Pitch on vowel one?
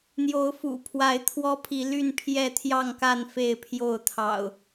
rising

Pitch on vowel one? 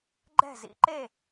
falling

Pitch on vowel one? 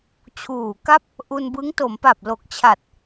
low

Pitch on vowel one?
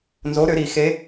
rising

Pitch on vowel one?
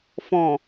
low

